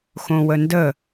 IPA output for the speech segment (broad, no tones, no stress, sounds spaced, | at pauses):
x õ w ə n d ə